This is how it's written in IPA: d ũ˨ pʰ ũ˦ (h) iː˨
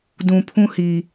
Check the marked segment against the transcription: correct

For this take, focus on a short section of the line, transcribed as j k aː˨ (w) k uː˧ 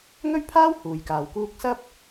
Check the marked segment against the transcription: correct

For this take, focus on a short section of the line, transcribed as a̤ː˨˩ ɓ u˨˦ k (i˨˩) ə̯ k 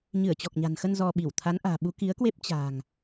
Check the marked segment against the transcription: incorrect: i˨˦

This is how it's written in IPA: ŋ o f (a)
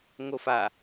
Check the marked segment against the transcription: correct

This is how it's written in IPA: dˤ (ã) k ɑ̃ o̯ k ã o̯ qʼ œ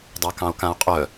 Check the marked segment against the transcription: incorrect: a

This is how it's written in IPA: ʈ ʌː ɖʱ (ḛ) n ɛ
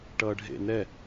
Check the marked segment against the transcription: correct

